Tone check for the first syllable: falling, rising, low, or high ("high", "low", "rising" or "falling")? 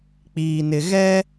low